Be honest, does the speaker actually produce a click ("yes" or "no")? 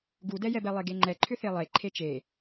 yes